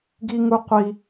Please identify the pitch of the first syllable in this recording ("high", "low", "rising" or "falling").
high